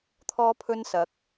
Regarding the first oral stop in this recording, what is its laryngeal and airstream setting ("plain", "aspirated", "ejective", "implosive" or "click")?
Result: aspirated